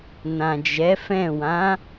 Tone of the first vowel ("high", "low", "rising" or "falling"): low